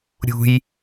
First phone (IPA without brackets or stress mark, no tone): ɾʲ